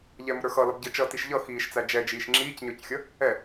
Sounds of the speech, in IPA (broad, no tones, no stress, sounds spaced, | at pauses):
ʎ ɛ m ʊ ɾ ə˞ x ʌ l ʌ b ɟ ə t͡ʃ ʌ t i ʃ ʎ ʌ x iː ʃ t͡s æ d͡ʒ ɛ d͡ʒ iː ʃ ŋ͡ǁ iː c ɲ ə˞ c xʲ ʌ | ɛ